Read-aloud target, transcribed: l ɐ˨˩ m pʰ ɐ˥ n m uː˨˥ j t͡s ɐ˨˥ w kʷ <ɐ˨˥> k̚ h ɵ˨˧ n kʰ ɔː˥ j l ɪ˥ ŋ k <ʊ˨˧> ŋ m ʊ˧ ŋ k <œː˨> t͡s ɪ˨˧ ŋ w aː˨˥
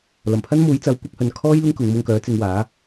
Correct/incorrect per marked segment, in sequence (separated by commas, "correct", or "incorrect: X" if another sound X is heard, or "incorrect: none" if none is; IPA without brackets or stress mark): correct, correct, incorrect: œː˨˥